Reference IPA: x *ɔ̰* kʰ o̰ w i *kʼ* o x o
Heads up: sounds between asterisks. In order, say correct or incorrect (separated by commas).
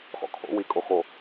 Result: correct, correct